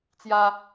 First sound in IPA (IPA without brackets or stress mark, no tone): t͡s